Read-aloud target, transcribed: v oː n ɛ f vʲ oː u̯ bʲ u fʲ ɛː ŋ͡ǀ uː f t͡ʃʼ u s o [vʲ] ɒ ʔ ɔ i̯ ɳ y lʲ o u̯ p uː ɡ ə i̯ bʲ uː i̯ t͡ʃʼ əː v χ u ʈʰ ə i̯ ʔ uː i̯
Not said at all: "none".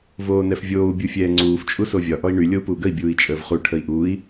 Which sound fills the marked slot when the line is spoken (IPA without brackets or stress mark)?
vʲ